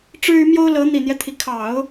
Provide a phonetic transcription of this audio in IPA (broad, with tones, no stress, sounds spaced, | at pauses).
ʈ͡ʂ ɻ̩˥ y˧˥ m j o˥ ʊ̯ l ɤ˧˥ n̪ i˨˩ n̪ j ɛ˦ t̪ʰ i˩ kʰ ɑ˨˩˦ ʊ̯